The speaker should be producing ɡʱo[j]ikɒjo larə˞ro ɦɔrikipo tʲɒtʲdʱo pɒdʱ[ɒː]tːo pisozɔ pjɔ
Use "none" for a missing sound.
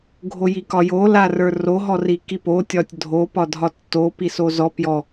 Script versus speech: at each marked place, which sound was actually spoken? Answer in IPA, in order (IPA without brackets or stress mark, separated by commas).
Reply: j, ɒ